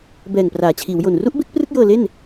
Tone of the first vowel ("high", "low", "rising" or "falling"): low